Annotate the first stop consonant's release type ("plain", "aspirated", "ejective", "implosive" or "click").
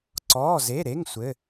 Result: click